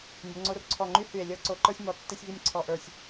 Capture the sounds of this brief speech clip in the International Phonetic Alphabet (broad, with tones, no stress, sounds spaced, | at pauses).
nʲ ə˩˧ ŋ͡ǀ o˧ r ǀʰ ɔ˧˩ ŋ͡ǃ y˥ h y˧˩ e̯ lʲ ɤ˥˧ ǀ o˧ ǃ ə˞˥ sʲ m ɔ˧˩ tː e˥ sʲ v i˥˧ nʲ ǀʰ ɔ˧ ʔ ə˞˧˩ sʲ